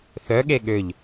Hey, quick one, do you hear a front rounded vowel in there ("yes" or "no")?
yes